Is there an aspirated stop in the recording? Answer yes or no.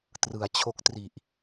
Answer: yes